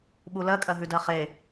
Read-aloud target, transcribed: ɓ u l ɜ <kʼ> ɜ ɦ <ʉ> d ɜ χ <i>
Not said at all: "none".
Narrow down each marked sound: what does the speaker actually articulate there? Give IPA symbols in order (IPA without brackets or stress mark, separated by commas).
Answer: kʼ, ʉ, e